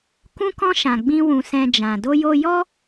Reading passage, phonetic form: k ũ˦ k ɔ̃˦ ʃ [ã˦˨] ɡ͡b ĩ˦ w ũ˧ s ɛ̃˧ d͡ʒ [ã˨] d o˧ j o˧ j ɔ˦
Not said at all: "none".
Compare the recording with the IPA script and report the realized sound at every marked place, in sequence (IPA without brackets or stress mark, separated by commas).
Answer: ã˧, ã˨